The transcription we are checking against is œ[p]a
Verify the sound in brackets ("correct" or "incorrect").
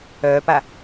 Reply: correct